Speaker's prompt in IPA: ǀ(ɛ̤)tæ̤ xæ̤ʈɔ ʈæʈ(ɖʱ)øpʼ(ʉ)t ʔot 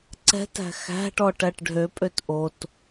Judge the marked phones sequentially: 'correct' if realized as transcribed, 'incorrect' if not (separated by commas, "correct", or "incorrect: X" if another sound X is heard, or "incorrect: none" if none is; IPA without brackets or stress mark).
correct, correct, incorrect: ø